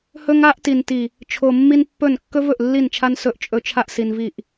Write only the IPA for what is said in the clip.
h ɵ˦ ŋ a˦ ʔ t i˨ n t i˨ | t͡ʃʰ o˨ mː i˦ n pː ɵ˦˨ n kː ɵ˦ v ɵ˨ ʔ lː i˦˨ n t͡ʃʰ a˦ n s ɵ˦ ʔ t͡ʃʼ ɵ˦ t͡ʃʰ a˦ ʔ s i˨ n v i˦˨ ʔ

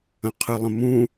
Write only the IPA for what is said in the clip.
ə̃ qʰ ɨ lˠ ə̃ m ũ

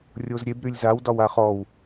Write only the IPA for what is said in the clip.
rʲ o z ɾʲ e b ɾ y lʲ z a w d ɒ w a χ ɔ w

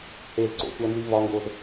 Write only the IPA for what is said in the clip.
h e z ǀ o̰ sʷ æ n z i v ɒ ŋ ɡ o z

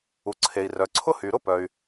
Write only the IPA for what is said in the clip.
u˩ ǀʰ e˩ i̯ r œ˩ ǀʰ ʊ˥ h y˩ ɾ ʊ˥ p œ˩ y̯

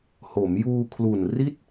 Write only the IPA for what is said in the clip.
h o˩˦ m j uː˧ kʰ l u˨˩ n r i˥˩ t̚

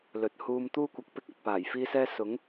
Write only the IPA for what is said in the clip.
l ɵ˨ t̚ h uː˧ m t̪ uː˥ kʷ ɐ˨ k̚ p ɪ˥ k̚ ɐ˨ t̚ p aː˨˩ j f iː˥ s ɛː˥ s ʊ˨˥ ŋ

